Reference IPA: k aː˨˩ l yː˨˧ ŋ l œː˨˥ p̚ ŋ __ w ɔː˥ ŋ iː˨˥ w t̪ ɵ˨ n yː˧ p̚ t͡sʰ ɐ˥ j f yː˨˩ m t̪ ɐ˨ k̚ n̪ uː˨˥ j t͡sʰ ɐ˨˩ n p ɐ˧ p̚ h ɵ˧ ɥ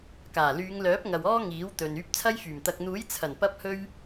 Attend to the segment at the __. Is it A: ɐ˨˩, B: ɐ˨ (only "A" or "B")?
B